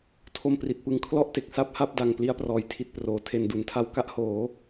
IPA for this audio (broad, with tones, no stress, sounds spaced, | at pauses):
tʰ o˧ m p r i˨˩ t̚ p ɯ˧ ŋ kʰ l ɔ˥˩ ʔ t e˨˩ k̚ s a˥˩ p̚ h a˥˩ p̚ d a˨˩ ŋ p l i˧ a̯ p r ɔː˩˦ j tʰ i˨˩ t̚ p r oː˨˩ tʰ e˧ n d u˨˩ n tʰ a˦˥ w k a˦˥ ʔ h oː˩˦